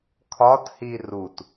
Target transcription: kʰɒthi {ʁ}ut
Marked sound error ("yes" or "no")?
yes